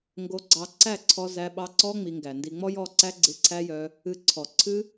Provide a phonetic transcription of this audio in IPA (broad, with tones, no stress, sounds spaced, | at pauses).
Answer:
ŋ ɡ o˧ ɡ͡ǀ ɑ˧ ǀ æ˦˨ ǀʰ ɔ˧ z æ˧ ɓ ɑ˧ ǀ ɔ˦ ŋ͡m i˧ ŋ ɡ æ˨ n d i˧ ŋ͡m ɔ˦ j ɔ˦˨ ǀ æ˦ ɡ͡ǀ ɨ˧ ǀʰ æ˦ j œ˧ | ɨ˧ ǀʰ ɔ˨ ǀʰ ɨ˦